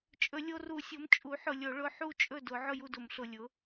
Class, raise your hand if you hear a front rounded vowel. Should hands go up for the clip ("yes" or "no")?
no